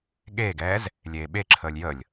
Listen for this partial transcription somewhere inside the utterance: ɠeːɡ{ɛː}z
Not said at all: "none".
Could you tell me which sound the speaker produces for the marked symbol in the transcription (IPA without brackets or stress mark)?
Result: ɛː